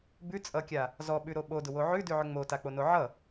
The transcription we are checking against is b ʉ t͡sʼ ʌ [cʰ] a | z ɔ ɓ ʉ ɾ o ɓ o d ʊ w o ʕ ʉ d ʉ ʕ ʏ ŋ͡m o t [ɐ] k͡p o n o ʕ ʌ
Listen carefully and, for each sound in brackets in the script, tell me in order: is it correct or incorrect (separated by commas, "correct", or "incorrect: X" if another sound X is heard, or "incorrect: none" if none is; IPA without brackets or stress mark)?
incorrect: kʲ, incorrect: a